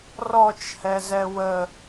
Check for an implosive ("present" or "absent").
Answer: absent